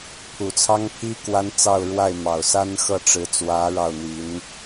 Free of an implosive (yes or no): yes